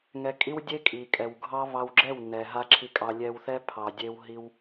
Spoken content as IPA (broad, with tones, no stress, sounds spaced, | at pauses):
ŋ ɛ˧ kʼ i˦ w dʲ e˦ kʼ i˨ kʼ ɛ˨ w ɡʱ ɑ˦ β ɑ˧ w ɡ͡ǁ ɛ˦˨ w n ɛ˨ ɦ a˦ ǁʰ i˧ kʼ ɑ˧ lʲ ɛ˧ w θ ɛ˦ pʰ ɑ˨ dʲ e˧ w ɦ i˧ w